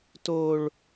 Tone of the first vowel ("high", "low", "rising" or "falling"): low